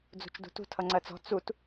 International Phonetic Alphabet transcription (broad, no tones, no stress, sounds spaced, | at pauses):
d͡z ṳ t͡ʃ d ṳ t ṳ tʰ ʌ ŋ͡ǀ ɜ t͡s ɔ̤ t͡s u t